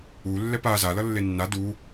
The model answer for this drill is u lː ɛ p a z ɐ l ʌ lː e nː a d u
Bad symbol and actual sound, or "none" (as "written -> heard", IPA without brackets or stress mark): ɐ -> a